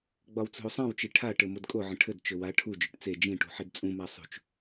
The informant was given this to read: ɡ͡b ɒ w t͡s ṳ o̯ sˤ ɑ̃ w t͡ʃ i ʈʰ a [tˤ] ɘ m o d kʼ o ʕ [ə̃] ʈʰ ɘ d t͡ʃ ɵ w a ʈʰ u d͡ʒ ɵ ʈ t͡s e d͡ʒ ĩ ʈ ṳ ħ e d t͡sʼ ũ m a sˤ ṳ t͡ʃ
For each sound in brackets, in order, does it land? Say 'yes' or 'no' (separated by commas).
no, yes